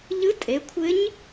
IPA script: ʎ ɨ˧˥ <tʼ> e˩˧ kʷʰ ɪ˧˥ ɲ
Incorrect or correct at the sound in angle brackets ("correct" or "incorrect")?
correct